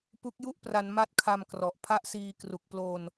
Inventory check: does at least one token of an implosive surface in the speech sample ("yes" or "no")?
no